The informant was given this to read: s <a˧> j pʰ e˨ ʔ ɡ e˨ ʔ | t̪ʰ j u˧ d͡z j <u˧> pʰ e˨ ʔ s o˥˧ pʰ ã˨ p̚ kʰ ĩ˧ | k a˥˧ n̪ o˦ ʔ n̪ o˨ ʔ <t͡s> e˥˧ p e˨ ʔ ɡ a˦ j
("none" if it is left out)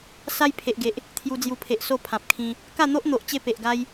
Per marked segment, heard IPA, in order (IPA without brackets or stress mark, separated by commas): a˦, u˧, t͡ɕ